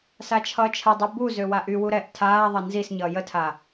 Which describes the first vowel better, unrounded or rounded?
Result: unrounded